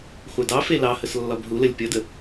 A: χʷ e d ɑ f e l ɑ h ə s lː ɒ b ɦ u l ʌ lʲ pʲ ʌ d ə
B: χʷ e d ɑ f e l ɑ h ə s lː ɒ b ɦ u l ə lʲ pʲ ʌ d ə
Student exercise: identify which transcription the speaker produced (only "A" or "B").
B